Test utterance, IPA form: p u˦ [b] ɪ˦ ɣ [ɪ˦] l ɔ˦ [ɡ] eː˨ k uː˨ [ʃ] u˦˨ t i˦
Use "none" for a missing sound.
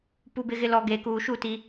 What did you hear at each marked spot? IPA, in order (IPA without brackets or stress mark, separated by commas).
b, ɪ˦, ɡ, ʃ